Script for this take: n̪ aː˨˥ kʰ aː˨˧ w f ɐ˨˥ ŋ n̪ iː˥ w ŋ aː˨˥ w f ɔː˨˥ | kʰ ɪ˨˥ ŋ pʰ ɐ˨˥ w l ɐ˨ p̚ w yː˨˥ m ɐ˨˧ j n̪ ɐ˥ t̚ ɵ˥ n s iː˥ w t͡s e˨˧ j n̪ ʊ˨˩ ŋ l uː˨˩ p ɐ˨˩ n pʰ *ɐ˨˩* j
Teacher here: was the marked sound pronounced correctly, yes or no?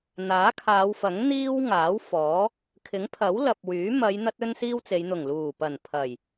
yes